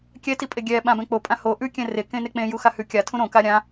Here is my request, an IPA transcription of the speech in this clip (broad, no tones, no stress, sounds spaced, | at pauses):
kʲ ɛ t i pʼ e ɡʲ ɛ ɓ ã b ɛ̃ k͡p o pʼ ã h o ʔ ʉ kʲ ɛ̃ r e k ẽ n e k͡p ẽ j u x a h ʉ kʲ a tʰ ũ ɾ õ k a ɾʲ ã